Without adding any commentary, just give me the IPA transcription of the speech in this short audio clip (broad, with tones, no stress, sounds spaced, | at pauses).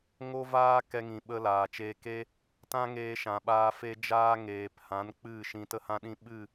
ŋ o˦ v aː˦ k ɛ˧ ŋ ĩ˨ ɓ ə˧ l aː˨ t͡ʃ eː˧ k e˦ | t ã˦ ŋ eː˧ ʃ ã˨ ɓ aː˧ f e˦ d͡ʒ aː˦ ŋ eː˨ p h ã˨˦ n k͡p ɨ˦˨ ʃ ĩ˧ t ə˦ h ã˦ ɗ ĩ˦ ɓ ɨ˦˨